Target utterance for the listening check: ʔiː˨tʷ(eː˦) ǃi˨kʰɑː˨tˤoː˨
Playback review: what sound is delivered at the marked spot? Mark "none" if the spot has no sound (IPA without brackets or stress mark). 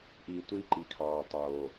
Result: iː˦